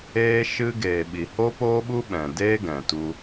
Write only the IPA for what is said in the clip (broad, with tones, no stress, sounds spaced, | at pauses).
eː˦ ʃ ɨ˦ ɡ eː˨ ɓ i˨ h o˦ p oː˦ ɓ u˦ ɓ ɛ̃˨ d eː˦ ɡ ɛ̃˨ t u˧